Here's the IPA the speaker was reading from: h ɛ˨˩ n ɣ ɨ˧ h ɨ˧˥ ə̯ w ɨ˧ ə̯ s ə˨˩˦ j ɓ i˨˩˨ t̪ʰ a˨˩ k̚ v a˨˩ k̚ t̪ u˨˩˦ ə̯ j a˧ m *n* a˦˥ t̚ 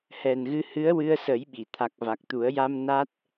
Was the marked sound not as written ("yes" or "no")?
no